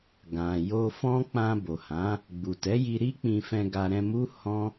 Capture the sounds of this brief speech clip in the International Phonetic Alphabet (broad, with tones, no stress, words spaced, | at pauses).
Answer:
ɡã˨jo˧ fɔ̃˦ k͡pã˧bo˨hã˨˦ | ɡ͡bu˨tɛ˨˦ji˧ɾi˦ k͡pĩ˧fɛ̃˧ɡa˧ ɾɛ̃˧mu˦ hɔ̃˦